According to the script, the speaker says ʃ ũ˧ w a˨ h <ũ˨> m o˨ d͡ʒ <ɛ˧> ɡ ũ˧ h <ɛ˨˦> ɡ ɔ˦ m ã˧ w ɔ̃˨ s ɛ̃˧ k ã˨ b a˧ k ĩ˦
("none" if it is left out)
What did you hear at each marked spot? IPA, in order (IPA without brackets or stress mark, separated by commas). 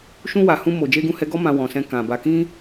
ũ˧, e˧, ɛ˧